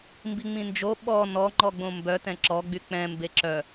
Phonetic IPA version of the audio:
m b i ŋ͡m ĩ n d͡ʒ o ɓ ɔ n ɔ ŋ͡ǃ ɔ ɡ͡b õ m b œ t ɛ̃ ǁ ɔ ɡ͡b y k͡p ɛ̃ m b e ǁ œ

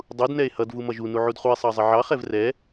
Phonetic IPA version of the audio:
dˤ u d n ɛ e̯ h ʌ d v u m ʌ ʒ u n u ʕ u d χ u e̯ sˤ ɑ zˤ ɪ ʕ ɑ χ ɛ v r ɛ

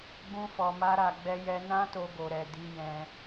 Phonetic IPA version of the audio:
ɡ͡b ũ˧ f ɔ˨ m a˧ ɾ a˨ ɡ͡b ɛ˧ j ɛ˧ n ã˦ t o˧ ɡ o˨ ɾ ɛ˨ d i˧ j ɛ̃˧

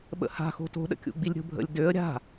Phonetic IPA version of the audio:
ɓ ə̰ h a̤ x o̤ t o̤ ɗ ə̰ kʲ ṵ ɡ͡b i lʲ ɾʲ o̤ bʱ ə̰ lʲ d ø ə̯ ɾʲ a̤

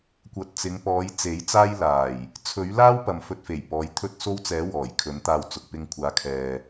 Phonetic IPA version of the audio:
kʷ ɐ˧ t̚ t͡s ɪ˨˧ ŋ p ɔː˨˧ j t͡s e˨˥ j t͡s aː˥ j l aː˨˩ j | t͡sʰ ɵ˨˥ ɥ l aː˥ w p ɐ˨ m f ɵ˧ t̚ f e˨˩ j p ɔː˨˧ j t̪ʰ ɵ˥ t̚ s o˥ w t͡s ɛː˨˥ w ɔː˨˩ j kʰ ɵ˨˥ n t̪ aː˧ w t͡s ʊ˨ k̚ p ɪ˧ ŋ kʷʰ aː˨˧ kʰ ɛː˧

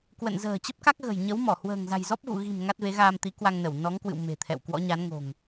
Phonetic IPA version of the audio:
k w ə̰˧˨ n z ə̤ː˨˩ t͡ɕ ə˦˥ p̚ k a˦˥ k̚ ɣ ə̤˨˩ j ɲ ə˨˦ w m ɔ˧˩ h w ə̤ː˨˩ ŋ z a̤˨˩ j z ɔ˦˥ p̚ ɣ ṵ˧˨ ɣ i̤˨˩ m ŋ a˦˥ t̚ v e˨˦ ɣ aː˧ m t̪ i˨˦ k w a˧ ŋ n ə˧˩ w n ɔ˨˦ ŋ k w ɨ̰˧˨ w m e̤˨˩ t̪ʰ ɛ̰˧˨ w k w ɔ̰˧˥ ɲ a˨˦ n ŋ o̤˨˩ ŋ

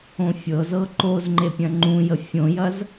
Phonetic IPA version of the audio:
õ fʲ ɤ z ɤ ǃ o z ŋ͡ǃ e pʲ ɐ̃ ŋ͡ǃ ũ j ə fʲ õ j ɐ z

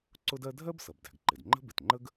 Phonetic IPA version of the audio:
ǀ ʊ˥ d ɜ˥ dʱ ɜ˥ b s ʌ˩ b d æ̤˩ ɡ ǃ ɪ˩ d ŋ͡ǃ ə̤˥ b ɪ˩ t ŋ͡ǃ ə˥ ɡ

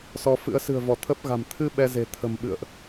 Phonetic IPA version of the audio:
s ɔ˧ f ɨ̰˧˥ ə̯ s ɨ̤˨˩ ə̯ v ɔ˧˩ t̪ʰ ə˦˥ p̚ ɣ a̤˨˩ m t̪ʰ ɨ˧ ɓ ɛ˧ z e̤˨˩ t̪ʰ ə̤˨˩ m ɓ ɨ̰˧˨ ə̯ ʔ

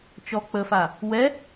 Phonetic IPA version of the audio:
t͡ʃ ɔ k͡p ə f a | w ɛ

